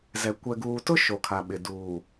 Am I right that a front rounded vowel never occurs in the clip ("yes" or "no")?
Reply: yes